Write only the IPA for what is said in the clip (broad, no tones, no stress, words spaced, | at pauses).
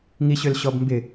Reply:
ŋiɕølɕɔbmbɪ